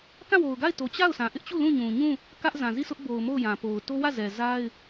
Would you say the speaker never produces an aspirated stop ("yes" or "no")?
yes